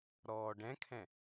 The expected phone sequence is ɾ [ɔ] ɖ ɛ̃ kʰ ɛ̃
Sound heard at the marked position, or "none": ɔː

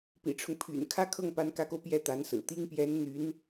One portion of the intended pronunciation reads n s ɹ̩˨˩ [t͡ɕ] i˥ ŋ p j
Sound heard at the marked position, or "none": t̪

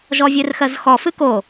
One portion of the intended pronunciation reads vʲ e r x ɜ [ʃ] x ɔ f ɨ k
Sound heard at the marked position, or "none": z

